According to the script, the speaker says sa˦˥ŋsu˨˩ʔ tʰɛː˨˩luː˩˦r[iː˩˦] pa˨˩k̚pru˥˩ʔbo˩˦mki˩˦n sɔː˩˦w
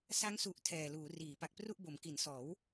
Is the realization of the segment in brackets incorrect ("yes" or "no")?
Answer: no